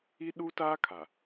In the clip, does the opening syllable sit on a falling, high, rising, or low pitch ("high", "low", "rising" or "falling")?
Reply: high